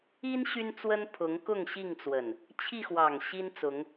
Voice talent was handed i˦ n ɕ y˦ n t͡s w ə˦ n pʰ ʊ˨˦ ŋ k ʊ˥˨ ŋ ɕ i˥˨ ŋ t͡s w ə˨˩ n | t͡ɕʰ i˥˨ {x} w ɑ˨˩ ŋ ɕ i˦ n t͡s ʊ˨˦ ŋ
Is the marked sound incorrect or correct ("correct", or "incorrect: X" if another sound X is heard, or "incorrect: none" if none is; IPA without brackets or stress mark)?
correct